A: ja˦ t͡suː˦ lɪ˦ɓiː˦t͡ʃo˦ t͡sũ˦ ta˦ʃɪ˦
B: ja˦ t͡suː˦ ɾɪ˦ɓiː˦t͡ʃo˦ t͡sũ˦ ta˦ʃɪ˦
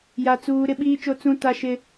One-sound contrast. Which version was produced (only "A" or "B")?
B